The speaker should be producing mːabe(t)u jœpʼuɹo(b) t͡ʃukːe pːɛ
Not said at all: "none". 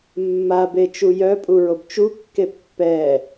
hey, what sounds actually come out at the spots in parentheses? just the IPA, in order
t͡ʃ, b

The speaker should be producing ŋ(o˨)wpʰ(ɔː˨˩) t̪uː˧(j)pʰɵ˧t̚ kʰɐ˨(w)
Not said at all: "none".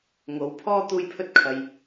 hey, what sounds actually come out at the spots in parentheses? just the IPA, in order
o˨˧, ɔː˥, j, j

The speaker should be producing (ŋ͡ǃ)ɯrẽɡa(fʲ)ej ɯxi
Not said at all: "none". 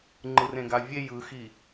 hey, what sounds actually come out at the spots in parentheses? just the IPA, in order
ŋ͡ǃ, vʲ

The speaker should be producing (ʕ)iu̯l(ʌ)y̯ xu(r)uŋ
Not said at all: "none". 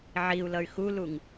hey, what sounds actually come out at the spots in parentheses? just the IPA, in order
ʕ, ʌ, l

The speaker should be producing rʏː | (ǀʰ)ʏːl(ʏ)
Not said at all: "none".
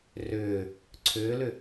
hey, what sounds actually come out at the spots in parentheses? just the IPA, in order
ǀʰ, ʏ

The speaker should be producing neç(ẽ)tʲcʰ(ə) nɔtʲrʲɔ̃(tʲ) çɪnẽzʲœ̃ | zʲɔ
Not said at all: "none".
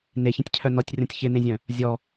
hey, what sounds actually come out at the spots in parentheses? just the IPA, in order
ẽ, œ, tʲ

